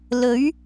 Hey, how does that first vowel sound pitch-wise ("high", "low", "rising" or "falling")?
rising